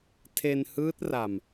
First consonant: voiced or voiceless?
voiceless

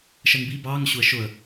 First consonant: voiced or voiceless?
voiceless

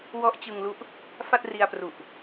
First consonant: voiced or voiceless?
voiced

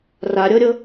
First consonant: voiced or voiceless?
voiced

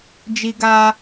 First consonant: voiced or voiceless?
voiced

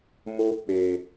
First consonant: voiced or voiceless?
voiced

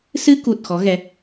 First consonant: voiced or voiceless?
voiceless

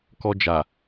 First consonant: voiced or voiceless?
voiceless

